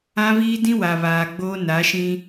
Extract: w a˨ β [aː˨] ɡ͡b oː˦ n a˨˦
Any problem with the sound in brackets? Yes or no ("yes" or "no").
no